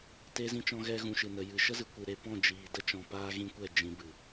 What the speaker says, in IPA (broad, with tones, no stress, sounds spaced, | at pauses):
t e˧ z ĩ˧ t͡ʃ ɔ̃˧ ɣ ɛ˧ ɣ ũ˨ ʃ ɨ˨ n ə˨ j ɨ˨ ʃ ə˦ z ɨ˨ kʷ ɨ˨ ɾ e˧ p ɔ̃˦˨ d͡ʒ iː˨ d ə˦ t͡ʃ ɔ̃˨ p aː˦ ɣ ĩ˦ kʷ ɛ˦˨ d͡ʒ ĩ˧ b ɨ˨